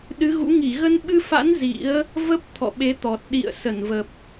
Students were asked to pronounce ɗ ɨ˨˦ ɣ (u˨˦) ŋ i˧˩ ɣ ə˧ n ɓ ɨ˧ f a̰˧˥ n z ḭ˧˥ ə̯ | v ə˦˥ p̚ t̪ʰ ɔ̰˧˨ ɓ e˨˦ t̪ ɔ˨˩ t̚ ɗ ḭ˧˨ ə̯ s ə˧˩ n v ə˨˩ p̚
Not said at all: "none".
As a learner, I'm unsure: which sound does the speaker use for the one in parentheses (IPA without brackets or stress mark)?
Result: ṵ˧˥